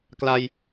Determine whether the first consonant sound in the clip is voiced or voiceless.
voiceless